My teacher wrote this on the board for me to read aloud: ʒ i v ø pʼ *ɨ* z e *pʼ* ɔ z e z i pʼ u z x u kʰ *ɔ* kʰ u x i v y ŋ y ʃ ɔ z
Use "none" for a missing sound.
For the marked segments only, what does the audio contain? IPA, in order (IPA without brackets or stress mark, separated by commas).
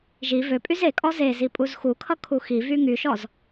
y, kʼ, ʌ